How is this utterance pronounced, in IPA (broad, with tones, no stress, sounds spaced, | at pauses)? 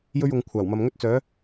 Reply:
j ɵ˥ ɥ ʊ˨˧ ŋ kʷʰ aː˨˩ w m ɐ˧ m ŋ ɵ˥ t̚ t͡s œː˨˥